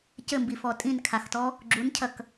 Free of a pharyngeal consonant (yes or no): yes